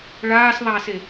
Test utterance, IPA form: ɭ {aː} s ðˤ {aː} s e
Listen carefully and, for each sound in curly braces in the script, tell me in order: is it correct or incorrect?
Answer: correct, correct

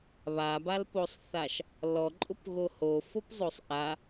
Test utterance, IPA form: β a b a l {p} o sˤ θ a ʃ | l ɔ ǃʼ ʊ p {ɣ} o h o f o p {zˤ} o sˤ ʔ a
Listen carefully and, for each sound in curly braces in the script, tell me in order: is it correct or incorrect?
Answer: correct, correct, correct

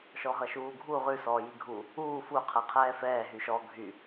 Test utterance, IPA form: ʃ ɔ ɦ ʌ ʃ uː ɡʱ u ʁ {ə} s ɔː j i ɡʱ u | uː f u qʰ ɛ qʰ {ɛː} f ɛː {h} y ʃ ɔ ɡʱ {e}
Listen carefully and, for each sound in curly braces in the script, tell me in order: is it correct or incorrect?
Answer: incorrect: ʉ, correct, incorrect: ɦ, incorrect: y

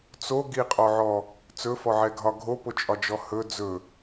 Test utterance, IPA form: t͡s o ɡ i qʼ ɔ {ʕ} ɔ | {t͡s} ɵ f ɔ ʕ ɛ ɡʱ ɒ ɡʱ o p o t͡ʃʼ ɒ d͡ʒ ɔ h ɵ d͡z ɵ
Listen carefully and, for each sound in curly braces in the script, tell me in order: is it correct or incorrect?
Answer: correct, correct

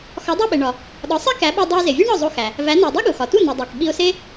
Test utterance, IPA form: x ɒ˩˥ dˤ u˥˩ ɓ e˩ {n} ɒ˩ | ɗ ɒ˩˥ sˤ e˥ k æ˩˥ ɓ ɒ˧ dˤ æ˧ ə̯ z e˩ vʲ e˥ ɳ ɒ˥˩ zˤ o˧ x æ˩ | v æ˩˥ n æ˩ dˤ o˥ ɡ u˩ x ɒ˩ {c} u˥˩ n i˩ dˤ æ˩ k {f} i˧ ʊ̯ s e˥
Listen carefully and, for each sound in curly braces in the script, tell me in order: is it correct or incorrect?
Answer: incorrect: ɳ, incorrect: t, incorrect: ɓ

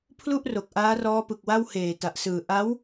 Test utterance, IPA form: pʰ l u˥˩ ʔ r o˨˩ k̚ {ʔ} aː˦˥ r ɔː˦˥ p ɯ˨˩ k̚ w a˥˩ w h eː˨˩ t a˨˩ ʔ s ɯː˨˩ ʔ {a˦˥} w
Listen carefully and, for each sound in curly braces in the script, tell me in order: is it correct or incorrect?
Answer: correct, correct

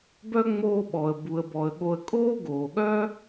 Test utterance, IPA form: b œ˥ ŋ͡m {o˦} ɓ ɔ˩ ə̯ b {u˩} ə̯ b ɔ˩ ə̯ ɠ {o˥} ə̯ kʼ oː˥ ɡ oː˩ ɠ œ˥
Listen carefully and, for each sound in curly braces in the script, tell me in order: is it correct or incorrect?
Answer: incorrect: oː˦, correct, incorrect: o˨

